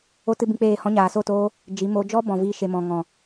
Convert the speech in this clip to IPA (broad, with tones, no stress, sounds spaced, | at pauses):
o˦ t ɨ˦ b ĩ˧ k͡p eː˦˨ h ɔ̃˧ ɲ aː˨ s o˦˨ t oː˧ | d͡ʒ i˨˦ m o˧ d͡ʒ ɔ˦ b ɔ̃˨ v iː˧ ʃ e˨ m ɔ̃˨ ŋ ɔ̃˨